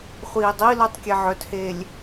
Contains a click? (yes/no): no